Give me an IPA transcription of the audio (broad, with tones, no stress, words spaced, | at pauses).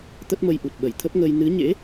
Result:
t̪ə˦˥t̚mə˧jʔu˨˩t̚ ɓə˧˩jt̪ʰə˦˥p̚ŋəː˧j nɨ˨˦ɲḛ˧˥